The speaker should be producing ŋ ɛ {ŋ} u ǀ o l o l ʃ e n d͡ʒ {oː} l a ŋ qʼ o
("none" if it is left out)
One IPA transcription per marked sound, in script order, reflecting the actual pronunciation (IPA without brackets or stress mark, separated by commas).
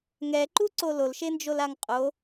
ǃ, o